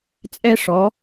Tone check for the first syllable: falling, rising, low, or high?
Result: high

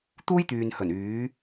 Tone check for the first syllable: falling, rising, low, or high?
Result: high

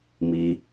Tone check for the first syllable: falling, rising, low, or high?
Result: high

